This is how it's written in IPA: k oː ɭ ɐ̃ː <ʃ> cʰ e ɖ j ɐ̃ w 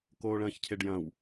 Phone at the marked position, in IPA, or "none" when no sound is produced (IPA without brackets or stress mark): ç